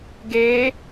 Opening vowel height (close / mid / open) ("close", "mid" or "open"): mid